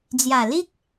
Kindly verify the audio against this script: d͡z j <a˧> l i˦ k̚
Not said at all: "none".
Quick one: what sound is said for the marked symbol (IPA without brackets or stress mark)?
a˨˩